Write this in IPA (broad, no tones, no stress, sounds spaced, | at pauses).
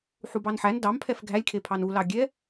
ħ u b ɑ n ħ æ n d ɑ m pʰ ɛ f ɡʱ æ lʲ kʰ e pʰ ɑ n u l ɑ ɡʲ ɛ